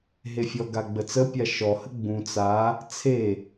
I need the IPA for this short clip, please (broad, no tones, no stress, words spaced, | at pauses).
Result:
ɦefʲɔɡa ɡ͡bət͡səpʲa ʃɔhə ɡ͡bũ t͡sa | t͡sʰe